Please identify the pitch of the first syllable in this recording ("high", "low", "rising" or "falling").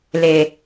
low